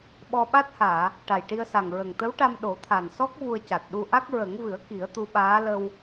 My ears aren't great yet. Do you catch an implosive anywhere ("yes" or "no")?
yes